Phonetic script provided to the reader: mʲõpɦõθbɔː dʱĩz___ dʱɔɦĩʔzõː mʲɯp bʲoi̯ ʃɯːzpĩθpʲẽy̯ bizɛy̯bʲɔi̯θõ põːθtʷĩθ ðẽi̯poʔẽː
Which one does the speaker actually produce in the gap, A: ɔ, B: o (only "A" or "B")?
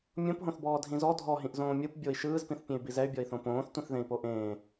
A